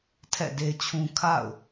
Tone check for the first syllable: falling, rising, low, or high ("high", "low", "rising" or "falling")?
falling